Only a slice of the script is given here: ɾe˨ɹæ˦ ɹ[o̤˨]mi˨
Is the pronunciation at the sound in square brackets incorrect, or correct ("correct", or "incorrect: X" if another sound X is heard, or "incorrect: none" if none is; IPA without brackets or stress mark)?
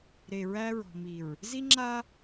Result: incorrect: ɔ̤˨